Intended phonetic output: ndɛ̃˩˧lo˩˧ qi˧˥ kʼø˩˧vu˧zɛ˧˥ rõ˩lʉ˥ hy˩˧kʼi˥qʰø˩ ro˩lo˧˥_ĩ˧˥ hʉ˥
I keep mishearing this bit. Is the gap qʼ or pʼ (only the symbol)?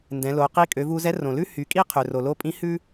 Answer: pʼ